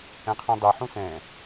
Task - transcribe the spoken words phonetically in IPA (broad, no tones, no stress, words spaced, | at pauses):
ɛ̃qʰẽdˤi ħũsɛ̃